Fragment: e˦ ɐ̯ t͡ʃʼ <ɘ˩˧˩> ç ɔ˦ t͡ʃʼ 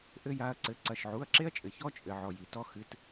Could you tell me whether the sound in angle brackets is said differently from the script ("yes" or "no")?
yes